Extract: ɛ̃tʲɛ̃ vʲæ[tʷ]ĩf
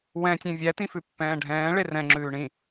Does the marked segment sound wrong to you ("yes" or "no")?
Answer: yes